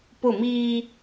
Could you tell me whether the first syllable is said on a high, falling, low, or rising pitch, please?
falling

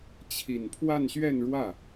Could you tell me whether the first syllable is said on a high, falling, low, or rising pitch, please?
low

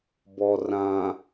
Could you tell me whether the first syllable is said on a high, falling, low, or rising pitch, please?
low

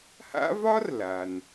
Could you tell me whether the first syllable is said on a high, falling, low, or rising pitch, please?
high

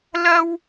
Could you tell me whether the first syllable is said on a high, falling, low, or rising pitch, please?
high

